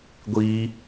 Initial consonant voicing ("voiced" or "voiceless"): voiced